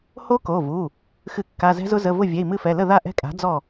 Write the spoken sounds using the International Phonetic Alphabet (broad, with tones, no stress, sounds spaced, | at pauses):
h o˦˥ k o˩˧˩ v u˩˧˩ | x ɨ˧˩˧ kː a˩˧˩ z ɛ̤˦˥ z ʊ˦˥ z ə˩˧˩ v ʊ˥˩ vʲ ɛ˩˧˩ i̯ m ɨ˥˩ f ɛ˩˧˩ l ə˥˩ ð a˥˩ ʔ ɛ̤˦˥ kʼ a̤˩˥ d͡z ɔ˥˩